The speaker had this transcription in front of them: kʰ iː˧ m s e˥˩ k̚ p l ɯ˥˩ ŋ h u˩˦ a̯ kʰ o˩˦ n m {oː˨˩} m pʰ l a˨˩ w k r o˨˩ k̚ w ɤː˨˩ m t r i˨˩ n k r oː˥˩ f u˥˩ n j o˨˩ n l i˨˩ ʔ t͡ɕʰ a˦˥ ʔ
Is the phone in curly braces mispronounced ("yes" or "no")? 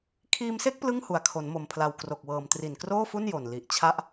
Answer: yes